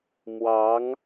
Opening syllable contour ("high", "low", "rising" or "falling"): rising